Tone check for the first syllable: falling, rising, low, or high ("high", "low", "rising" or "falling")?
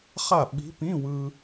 falling